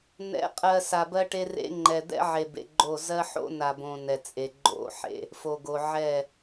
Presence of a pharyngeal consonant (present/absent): present